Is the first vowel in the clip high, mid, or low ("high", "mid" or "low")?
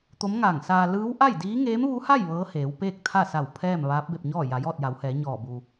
mid